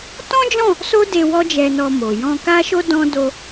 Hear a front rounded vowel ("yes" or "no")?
no